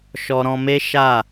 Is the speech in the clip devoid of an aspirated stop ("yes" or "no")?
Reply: yes